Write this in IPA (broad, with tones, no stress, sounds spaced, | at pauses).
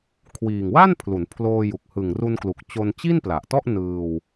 kʰ w iː˨˩ ŋ w a˥˩ n pʰ l u˩˦ n pʰ l oː˧ j u˨˩ k̚ h ɯ˨˩ ŋ r u˧ n k l u˨˩ k̚ t͡ɕ o˧ n t͡ɕ i˥˩ n p l a˨˩ ʔ t ɔ˥˩ ʔ n ɯː˧ w